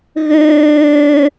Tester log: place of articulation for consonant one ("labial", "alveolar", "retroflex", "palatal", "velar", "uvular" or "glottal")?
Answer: velar